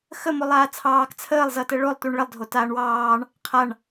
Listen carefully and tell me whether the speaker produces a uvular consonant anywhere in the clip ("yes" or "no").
yes